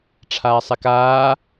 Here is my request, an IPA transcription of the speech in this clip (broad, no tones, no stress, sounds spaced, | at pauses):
ʈ͡ʂʰ aː sˤ ɛ k aː